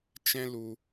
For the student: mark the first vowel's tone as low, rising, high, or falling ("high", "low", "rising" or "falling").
high